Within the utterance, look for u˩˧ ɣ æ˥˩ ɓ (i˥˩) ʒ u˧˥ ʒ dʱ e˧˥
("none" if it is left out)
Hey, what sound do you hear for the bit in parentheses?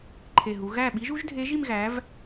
i˧˥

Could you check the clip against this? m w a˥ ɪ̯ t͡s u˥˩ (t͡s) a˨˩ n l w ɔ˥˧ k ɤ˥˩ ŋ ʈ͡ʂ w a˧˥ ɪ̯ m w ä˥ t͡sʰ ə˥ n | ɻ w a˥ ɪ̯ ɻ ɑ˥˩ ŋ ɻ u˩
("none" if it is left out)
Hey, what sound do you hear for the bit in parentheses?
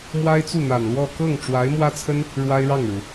n̪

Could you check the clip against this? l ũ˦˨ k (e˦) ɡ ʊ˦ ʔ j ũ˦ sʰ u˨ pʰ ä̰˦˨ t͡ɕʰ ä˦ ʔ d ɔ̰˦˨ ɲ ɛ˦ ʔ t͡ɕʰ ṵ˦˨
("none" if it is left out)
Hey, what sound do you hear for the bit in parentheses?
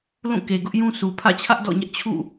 e˨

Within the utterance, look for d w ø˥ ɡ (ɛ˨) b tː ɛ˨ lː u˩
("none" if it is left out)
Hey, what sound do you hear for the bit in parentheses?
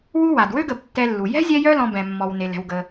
ə˨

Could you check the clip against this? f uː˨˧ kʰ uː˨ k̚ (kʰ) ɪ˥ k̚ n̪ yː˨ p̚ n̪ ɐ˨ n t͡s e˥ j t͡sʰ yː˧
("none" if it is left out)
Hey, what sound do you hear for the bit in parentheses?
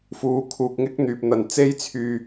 ŋ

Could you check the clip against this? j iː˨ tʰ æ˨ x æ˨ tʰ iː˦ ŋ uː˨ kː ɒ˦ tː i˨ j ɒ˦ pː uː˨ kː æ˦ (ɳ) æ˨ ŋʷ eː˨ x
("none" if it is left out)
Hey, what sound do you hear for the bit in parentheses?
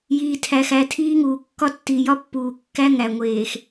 ŋ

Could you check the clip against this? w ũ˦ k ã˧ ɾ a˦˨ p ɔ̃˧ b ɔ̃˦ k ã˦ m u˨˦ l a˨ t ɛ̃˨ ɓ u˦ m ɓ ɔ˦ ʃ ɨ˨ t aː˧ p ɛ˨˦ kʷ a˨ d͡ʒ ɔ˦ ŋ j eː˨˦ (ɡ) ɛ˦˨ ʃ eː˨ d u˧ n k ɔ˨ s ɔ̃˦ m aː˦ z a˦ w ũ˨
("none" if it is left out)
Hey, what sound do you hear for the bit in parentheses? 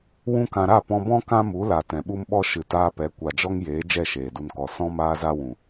d͡ʒ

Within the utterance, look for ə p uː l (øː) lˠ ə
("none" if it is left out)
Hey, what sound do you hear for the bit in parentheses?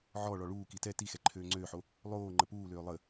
øː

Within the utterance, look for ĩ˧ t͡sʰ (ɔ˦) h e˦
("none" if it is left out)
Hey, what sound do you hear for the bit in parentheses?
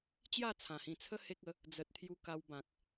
ə˦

